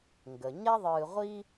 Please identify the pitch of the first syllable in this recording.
low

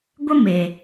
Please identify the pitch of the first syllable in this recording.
high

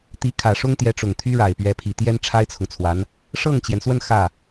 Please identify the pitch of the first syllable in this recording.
rising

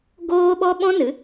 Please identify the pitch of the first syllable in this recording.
high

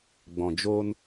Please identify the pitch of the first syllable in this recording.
low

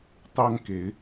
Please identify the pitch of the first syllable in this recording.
high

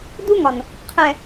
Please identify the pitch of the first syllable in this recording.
high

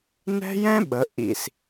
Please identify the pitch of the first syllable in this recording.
high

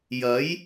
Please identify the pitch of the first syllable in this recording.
rising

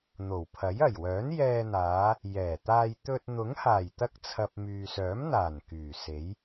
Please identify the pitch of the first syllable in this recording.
low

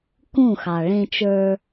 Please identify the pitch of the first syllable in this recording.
falling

